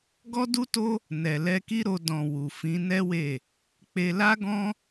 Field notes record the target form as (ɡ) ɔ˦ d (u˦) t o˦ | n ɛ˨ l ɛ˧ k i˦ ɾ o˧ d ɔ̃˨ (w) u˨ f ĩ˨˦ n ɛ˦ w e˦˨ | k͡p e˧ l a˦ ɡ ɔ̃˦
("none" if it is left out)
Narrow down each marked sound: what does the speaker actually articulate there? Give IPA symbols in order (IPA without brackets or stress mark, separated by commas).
ɡ, u˦, w